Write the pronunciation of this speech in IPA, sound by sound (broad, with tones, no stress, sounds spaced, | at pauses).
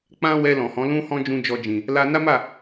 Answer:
k͡p ã˦ w ɛ˧ l ɔ̃˨ h ɔ̃˨˦ l ũ˦ h ɔ̃˦ d͡ʒ ũ˦ d͡ʒ ɔ˧ d͡ʒ ĩ˨ | l a˦ n a˦ m a˦˨